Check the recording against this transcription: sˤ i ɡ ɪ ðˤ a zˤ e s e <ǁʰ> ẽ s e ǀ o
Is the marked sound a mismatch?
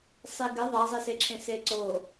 no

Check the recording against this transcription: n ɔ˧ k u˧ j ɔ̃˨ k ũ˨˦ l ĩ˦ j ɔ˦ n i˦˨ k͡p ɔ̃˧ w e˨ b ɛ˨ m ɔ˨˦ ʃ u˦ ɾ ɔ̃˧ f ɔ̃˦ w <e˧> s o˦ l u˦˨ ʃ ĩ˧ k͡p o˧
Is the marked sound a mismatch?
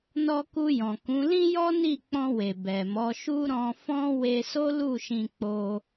no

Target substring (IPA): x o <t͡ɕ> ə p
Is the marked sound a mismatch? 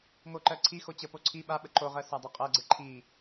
no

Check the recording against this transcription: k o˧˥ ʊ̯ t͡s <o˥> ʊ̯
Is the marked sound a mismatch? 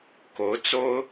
no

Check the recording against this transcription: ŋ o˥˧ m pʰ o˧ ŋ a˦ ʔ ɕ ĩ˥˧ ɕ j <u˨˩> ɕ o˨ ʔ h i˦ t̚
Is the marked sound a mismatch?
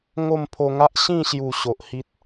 no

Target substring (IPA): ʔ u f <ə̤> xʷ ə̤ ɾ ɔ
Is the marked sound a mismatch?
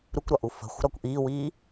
no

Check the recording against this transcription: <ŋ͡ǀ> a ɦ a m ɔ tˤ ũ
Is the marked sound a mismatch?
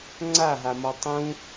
no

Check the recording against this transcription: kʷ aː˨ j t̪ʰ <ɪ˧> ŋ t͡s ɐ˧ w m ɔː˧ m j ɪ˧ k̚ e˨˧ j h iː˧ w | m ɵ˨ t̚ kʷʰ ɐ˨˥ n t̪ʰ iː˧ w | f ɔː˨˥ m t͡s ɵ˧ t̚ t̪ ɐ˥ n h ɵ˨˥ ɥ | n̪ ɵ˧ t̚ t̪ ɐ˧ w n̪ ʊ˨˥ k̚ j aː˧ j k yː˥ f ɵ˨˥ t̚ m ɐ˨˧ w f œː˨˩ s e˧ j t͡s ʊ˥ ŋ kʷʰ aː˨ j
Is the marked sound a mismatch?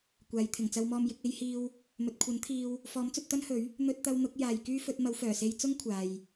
yes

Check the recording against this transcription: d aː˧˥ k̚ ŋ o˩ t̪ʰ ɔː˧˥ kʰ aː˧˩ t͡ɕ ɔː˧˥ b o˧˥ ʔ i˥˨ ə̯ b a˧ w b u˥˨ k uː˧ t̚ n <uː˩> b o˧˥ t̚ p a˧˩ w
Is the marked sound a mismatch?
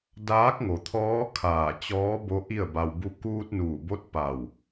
yes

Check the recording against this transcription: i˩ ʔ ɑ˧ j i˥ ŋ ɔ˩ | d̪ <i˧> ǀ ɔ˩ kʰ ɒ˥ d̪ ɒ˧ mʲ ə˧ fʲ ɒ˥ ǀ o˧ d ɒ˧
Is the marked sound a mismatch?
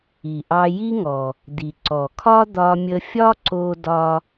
yes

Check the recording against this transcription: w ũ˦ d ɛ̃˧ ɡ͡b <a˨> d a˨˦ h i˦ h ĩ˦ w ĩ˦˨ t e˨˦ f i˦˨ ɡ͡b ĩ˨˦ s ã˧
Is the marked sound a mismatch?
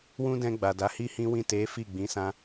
no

